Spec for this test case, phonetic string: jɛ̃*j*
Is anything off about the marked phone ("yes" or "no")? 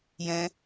yes